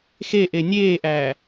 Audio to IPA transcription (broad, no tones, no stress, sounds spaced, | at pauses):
x e ʔ e nʲ eː ʔ æː